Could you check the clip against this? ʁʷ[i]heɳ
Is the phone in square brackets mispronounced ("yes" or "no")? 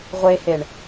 yes